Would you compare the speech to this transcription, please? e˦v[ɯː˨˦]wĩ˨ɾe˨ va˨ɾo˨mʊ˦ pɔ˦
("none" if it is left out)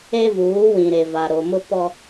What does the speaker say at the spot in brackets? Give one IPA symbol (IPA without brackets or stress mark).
uː˨˦